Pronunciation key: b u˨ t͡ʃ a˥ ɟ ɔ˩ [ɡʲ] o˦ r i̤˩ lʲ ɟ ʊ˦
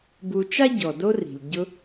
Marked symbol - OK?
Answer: no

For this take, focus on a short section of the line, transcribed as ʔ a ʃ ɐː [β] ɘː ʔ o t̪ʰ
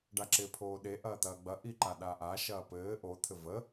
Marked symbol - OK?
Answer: no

